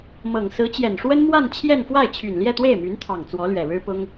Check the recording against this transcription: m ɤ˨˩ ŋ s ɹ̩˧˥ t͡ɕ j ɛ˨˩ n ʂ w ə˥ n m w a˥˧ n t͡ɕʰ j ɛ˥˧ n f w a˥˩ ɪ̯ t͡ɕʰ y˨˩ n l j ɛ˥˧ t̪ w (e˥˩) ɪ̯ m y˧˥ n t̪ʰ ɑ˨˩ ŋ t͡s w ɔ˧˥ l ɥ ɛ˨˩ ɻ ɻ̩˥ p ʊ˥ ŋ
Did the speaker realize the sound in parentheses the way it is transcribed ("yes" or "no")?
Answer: yes